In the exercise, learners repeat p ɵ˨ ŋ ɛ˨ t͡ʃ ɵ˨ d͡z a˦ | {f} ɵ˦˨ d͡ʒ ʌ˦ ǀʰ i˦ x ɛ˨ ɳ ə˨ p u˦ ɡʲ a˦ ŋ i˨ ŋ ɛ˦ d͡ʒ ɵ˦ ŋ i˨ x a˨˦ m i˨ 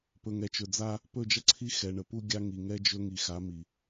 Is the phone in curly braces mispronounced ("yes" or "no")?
yes